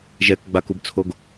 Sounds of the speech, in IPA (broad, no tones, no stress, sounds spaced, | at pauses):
ʒ ɛ k ɡ͡b a k u b t͡sʰ o ɡ